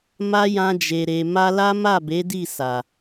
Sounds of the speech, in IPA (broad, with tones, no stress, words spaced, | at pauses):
ma˦jã˧d͡ʒe˨ɾe˨ ma˧la˦ma˦˨ be˨˦di˦˨sa˨